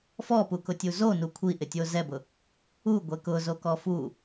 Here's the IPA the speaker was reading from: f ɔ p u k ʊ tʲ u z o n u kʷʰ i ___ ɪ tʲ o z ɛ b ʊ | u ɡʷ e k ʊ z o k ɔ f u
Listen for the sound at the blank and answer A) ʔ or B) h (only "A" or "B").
A